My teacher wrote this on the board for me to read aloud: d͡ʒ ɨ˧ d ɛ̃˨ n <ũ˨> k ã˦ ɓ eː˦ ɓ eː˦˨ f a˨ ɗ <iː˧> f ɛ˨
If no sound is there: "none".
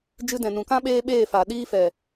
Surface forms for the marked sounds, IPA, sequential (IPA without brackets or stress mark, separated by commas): ũ˨, iː˧